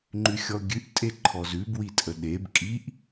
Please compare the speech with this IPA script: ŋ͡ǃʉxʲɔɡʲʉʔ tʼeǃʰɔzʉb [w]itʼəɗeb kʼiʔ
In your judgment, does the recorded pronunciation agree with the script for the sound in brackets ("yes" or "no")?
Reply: yes